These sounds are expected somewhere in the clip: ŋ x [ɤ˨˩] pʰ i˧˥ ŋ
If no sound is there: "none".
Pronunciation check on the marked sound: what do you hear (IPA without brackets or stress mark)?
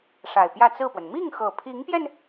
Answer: ɤ˨˩